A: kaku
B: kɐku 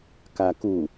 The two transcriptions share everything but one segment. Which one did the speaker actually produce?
A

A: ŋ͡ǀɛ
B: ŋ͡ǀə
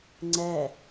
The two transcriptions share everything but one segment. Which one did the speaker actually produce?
A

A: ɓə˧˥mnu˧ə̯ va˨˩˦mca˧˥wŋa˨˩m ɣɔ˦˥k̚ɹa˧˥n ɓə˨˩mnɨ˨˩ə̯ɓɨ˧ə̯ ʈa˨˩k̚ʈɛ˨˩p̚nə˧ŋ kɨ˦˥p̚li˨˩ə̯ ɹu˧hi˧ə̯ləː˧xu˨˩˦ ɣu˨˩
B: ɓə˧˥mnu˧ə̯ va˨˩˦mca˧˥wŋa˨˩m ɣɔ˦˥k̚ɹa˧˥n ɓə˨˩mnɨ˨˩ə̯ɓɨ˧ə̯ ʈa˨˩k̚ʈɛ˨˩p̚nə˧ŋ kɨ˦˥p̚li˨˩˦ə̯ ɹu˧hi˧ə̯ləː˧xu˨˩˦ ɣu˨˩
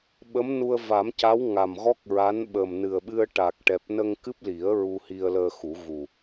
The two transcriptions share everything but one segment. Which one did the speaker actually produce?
B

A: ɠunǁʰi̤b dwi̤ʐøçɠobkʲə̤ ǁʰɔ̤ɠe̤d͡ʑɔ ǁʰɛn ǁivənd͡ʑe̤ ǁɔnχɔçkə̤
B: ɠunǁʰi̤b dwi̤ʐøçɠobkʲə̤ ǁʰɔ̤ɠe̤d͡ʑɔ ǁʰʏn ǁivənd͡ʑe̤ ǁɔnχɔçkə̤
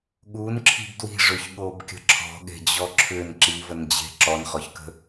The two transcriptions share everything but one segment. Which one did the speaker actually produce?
B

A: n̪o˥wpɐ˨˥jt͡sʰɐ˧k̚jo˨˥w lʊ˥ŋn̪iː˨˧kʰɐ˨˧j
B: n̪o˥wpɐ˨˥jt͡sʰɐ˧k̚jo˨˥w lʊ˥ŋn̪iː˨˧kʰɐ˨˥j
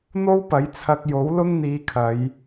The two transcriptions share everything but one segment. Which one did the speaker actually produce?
A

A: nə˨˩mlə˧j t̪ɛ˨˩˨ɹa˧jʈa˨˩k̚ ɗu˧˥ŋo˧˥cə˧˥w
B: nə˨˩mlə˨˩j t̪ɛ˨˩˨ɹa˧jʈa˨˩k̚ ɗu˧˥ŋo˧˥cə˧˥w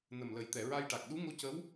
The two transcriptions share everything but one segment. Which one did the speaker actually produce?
B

